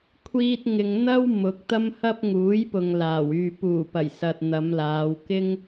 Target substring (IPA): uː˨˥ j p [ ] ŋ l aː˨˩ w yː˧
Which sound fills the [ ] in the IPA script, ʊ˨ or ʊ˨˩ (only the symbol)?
ʊ˨